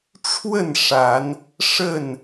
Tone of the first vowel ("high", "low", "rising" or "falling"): falling